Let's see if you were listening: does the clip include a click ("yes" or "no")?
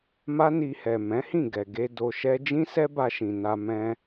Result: no